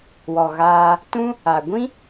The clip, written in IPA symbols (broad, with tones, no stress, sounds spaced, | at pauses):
w ɔ˨ ɣ aː˧ | t ũ˦ | a˨ ɡʷ ĩ˦